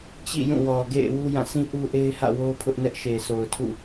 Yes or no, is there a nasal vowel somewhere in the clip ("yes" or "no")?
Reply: yes